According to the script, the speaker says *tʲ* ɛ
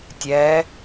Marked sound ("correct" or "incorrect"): correct